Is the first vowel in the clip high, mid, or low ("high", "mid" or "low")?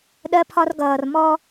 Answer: mid